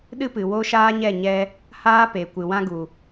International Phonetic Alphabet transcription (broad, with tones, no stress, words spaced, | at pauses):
ɗɨ˦pɨ˨ wo˦ʃaː˦ɲɛ˦˨ ɲɛ˦ | haː˦ pe˨kʷɨ˨wã˦ɡu˨